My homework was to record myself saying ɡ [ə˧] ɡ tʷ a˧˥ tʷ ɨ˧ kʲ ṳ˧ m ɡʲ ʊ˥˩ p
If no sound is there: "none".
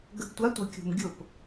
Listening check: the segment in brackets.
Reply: ə˧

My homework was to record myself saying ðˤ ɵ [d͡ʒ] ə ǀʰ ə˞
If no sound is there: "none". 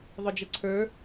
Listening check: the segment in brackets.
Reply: d͡ʒ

